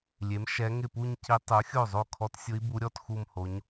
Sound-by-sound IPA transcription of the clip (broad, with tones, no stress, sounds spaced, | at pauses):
lʲ e˩˥ m ʃ ɛ˧˥ ŋ ɪ˥˩ p u˥˧ ɲ c i˧˥ tˤ u˩˥ xʲ o˥˩ zˤ o˥˩ kʰ ɔ˧˥ t sʲ ʊ˧˥ i̯ b u˧˥ ɾʲ ɔ˥˧ t x u˥˧ m h o˧˥ ɲ